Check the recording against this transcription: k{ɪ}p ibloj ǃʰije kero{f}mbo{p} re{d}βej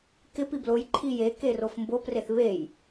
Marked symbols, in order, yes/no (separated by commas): yes, yes, yes, no